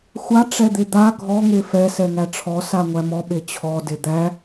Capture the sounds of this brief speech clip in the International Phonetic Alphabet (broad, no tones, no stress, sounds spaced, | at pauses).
xʷ a ʈ͡ʂ ɛ d̪ e d̪ a ɡʱ ɔ ŋ e f ɛ s ɛ ŋ æ ʈ͡ʂʰ ɔ s a ŋʷ æ m ɔ ɓ e t͡ɕʰ ɔ d e d̪ æ